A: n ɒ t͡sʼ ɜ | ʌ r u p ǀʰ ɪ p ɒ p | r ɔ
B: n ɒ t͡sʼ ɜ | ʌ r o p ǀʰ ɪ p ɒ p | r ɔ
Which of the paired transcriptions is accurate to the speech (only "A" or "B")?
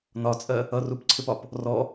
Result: A